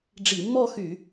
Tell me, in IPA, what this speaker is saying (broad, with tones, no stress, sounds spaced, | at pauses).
ɖ͡ʐ i˧˩˧ mː ɔ˥˧ x y˧˩˧